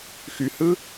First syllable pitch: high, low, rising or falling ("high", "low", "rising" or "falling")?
low